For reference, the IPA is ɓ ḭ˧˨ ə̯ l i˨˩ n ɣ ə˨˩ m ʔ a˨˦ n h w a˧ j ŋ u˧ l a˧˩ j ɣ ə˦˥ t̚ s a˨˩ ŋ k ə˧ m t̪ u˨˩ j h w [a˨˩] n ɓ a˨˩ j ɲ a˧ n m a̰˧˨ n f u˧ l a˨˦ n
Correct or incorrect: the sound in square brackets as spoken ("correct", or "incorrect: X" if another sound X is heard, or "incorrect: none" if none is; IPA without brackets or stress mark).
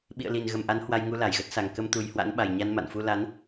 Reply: incorrect: a̰˧˥